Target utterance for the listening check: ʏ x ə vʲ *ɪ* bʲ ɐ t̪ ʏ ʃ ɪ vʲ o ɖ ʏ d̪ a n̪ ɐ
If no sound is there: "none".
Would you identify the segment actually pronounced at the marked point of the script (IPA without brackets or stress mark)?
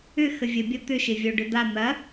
ə